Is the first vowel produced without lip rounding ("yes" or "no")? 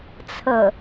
yes